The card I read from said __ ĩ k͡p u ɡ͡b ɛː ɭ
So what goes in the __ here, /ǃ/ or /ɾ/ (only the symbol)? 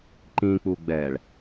ǃ